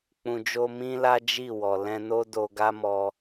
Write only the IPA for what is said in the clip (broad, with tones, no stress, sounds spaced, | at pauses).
k͡p ũ˨ d͡ʒ o˧ m ĩ˦ l a˦ d͡ʒ i˦˨ w ɔ˨ l ɛ̃˧ n o˦ d o˧ ɡ a˦ m ɔ˧